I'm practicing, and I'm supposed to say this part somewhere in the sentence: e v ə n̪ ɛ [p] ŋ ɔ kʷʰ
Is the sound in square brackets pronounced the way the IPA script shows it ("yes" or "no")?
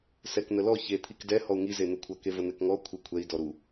no